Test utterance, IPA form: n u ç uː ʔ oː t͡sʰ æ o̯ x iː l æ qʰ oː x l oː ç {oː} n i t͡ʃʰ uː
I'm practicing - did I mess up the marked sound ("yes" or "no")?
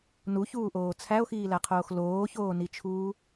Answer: no